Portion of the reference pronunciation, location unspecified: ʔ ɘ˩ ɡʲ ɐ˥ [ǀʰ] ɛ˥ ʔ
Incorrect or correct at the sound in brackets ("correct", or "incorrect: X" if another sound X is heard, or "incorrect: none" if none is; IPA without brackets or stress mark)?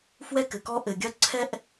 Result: correct